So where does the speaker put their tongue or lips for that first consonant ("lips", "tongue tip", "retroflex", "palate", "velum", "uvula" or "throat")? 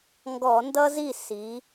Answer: velum